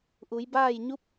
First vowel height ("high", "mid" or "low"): high